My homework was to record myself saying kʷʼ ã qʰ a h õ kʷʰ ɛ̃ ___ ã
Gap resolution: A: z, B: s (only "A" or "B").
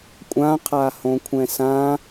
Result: B